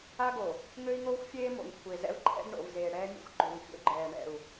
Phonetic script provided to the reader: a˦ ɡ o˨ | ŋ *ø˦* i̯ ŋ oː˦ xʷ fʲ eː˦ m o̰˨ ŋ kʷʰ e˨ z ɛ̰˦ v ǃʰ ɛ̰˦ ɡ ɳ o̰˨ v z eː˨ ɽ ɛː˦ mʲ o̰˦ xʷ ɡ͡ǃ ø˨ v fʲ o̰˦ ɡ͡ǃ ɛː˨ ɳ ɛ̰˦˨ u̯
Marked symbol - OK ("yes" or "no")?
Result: yes